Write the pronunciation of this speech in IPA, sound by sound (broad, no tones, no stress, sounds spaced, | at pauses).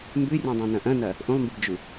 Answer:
m b ʉ rʲ õ dˤ ẽ n ɐ̃ ʔ ɐ̃ n ɐ | ʔ ũ lˠ m b ɨ b d͡ʒ ʉ